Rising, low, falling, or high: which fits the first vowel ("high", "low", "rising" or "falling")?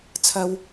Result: high